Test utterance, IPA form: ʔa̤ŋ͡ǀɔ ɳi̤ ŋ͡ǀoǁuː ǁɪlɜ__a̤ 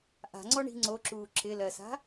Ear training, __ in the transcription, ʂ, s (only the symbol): s